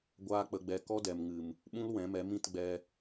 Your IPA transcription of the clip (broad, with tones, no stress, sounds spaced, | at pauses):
ɡʷ aː˦ k͡p ə˧ ɡ͡b ɛ˧ k ɔ˦ d ɛ˨ m ŋ ɨ˨ m | ɓ ũ˦ l w ɛ̃˨˦ m ɛ˨˦ m ĩ˦˨ t ɡ͡b ɛ˧